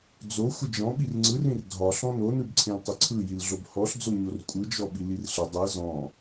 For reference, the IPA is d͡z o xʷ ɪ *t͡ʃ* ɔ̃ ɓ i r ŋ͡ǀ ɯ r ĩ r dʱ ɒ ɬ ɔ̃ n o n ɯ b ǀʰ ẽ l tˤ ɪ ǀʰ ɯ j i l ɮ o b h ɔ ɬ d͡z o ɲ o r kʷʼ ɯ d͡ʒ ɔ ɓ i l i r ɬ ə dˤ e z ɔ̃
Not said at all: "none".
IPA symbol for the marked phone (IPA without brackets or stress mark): d͡ʒ